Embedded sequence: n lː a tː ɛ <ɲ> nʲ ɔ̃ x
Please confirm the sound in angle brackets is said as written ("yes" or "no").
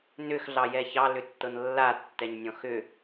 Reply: yes